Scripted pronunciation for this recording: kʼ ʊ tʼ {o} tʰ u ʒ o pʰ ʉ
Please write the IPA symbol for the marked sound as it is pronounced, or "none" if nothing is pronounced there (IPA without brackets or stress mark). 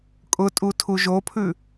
u